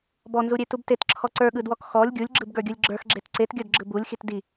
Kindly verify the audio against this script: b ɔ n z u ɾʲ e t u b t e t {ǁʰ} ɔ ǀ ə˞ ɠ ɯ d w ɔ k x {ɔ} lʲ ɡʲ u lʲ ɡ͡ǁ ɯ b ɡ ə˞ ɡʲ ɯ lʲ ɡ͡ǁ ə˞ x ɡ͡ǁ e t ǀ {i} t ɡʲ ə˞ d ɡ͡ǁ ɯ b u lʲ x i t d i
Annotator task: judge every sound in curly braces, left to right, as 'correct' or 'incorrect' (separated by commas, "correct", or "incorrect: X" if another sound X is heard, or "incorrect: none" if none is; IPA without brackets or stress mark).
correct, correct, incorrect: e